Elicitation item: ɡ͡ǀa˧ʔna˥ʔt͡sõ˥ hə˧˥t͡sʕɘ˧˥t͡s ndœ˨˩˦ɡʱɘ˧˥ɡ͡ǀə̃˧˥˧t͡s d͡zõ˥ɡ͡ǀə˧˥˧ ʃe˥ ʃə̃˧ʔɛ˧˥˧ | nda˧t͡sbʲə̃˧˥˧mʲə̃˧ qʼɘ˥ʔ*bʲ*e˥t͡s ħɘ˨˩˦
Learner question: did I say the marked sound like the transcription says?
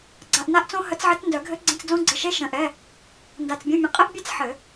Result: yes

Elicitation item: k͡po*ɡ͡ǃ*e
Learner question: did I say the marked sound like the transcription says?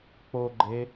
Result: yes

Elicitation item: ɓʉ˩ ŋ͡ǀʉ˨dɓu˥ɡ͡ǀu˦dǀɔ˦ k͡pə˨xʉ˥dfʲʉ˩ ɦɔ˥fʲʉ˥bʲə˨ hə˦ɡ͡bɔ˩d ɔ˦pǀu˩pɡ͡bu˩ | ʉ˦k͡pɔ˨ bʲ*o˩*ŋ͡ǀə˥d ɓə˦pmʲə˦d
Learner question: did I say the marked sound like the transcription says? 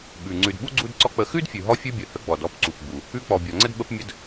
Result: no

